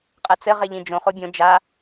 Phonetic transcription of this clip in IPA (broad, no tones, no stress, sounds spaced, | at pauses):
qʼ ɛ t͡s ɘ ʁ e ʎ ĩ d͡ʒ õ χ o bʲ õ d͡ʒ a